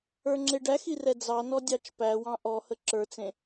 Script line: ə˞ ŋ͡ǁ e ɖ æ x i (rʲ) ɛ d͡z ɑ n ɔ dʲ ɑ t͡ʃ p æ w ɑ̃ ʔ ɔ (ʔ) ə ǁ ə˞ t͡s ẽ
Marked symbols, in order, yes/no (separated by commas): no, no